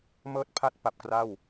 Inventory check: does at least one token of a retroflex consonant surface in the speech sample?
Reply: no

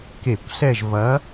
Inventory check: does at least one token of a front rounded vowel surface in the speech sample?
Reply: no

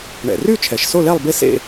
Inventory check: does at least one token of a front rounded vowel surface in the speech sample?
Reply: yes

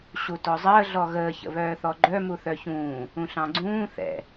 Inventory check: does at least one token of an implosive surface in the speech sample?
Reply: no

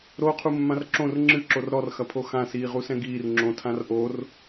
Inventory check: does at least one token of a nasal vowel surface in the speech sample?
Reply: yes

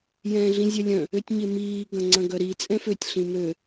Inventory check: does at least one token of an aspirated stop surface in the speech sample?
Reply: no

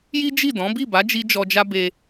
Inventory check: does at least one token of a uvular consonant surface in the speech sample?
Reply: no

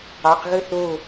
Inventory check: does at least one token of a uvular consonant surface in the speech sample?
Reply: yes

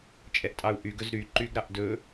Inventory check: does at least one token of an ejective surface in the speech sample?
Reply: yes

